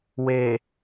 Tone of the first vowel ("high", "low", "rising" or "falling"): low